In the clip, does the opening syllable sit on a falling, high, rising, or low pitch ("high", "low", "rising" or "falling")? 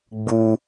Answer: high